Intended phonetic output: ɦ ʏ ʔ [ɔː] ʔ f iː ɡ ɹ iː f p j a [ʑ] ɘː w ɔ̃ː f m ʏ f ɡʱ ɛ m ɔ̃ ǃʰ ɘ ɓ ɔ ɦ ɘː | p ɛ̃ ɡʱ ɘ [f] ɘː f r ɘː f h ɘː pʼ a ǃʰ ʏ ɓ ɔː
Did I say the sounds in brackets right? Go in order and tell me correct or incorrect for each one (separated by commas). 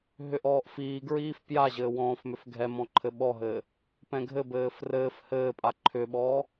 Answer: correct, correct, incorrect